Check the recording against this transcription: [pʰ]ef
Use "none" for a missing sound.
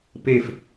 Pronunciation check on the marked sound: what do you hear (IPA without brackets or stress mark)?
p